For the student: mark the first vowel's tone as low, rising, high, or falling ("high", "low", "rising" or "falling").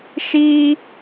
high